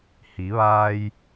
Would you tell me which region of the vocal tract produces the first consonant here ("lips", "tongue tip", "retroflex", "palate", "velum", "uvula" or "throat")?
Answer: throat